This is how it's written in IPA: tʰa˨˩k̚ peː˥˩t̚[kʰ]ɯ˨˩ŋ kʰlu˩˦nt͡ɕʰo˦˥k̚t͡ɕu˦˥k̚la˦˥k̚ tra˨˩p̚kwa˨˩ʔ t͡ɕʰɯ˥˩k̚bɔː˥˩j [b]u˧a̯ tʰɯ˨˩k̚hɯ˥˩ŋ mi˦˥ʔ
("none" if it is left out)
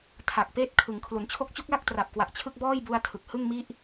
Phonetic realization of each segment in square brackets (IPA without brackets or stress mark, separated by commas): kʰ, b